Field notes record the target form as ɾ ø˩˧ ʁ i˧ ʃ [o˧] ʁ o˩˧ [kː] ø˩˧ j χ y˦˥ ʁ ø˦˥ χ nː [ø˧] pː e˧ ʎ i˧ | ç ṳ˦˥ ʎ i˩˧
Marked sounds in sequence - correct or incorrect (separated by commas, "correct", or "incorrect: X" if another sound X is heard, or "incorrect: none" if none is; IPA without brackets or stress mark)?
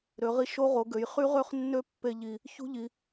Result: incorrect: o˦˥, incorrect: ɡ, incorrect: ø˦˥